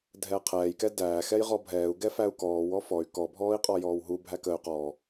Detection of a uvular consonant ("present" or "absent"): present